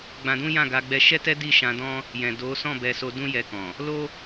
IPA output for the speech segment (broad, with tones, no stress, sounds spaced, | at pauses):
ɡ͡b ã˧ d ũ˦ j ã˦˨ ɡ a˧ ɡ͡b ɛ˧ ʃ ɛ˦ t ɛ˦ d i˦˨ ʃ ã˧ d ɔ̃˦ | j ɛ̃˨ d o˨˦ s ɔ̃˦˨ b ɛ˧ s o˧ d ũ˦ j ɛ˧ k ɔ̃˨ | l o˦